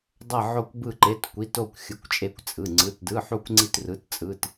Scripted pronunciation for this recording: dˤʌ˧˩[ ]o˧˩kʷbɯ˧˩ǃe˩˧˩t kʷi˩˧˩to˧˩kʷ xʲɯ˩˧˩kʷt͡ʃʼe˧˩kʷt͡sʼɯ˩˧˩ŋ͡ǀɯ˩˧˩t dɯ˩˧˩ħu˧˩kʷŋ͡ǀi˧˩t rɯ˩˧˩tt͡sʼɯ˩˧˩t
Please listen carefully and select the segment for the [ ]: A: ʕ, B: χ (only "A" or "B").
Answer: A